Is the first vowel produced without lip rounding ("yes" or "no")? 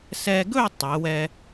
yes